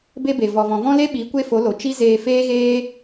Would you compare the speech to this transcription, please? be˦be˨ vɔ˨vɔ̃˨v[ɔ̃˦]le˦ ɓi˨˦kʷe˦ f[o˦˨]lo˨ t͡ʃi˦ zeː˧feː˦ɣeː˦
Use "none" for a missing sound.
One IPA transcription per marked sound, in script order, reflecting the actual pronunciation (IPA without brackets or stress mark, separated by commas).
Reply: ɔ̃˦, o˨˦